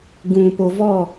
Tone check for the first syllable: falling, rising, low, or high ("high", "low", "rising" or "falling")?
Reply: low